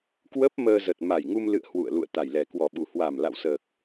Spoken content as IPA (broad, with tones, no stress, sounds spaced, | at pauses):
k w ə˦˥ p̚ m əː˧ z ə˨˩ t̚ m a˨˩ j ŋ u˧ m l ɨ̰˧˨ ə̯ h w ṵ˧˨ ə̯ l ṵ˧˨ ə̯ t̪ a˨˩ j l ɛ˨˩ k w ɔ˨˩ ɓ u˨˩ h w a˨˩ m l a̰˧˨ w s əː˨˩ k̚